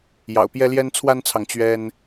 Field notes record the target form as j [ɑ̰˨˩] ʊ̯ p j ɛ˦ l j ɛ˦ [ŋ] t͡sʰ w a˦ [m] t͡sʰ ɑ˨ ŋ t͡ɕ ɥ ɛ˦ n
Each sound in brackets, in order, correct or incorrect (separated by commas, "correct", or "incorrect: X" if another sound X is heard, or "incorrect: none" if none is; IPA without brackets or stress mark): correct, incorrect: n, incorrect: n